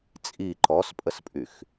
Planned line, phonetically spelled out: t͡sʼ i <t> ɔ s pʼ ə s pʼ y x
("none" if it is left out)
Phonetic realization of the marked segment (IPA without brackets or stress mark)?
ǃ